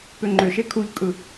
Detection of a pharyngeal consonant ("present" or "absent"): absent